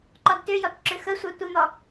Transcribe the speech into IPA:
ǃ ɔ d t ʏ j ɔ t ǁ ʏ x ə sʷ ɜ tʷ ə n̪ ɔ

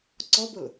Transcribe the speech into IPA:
ǀ ɔ b ʊ l

